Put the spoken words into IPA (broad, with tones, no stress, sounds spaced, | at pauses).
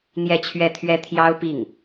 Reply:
n̪ j ɛ˥˧ t͡ɕʰ ɥ ɛ˥˩ t̪ʰ ɥ ɛ˥ t̪ʰ j ɑ˥ ʊ̯ p i˥˩ ŋ